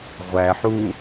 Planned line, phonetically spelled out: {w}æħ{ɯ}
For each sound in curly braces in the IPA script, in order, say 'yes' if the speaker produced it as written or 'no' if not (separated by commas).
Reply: no, no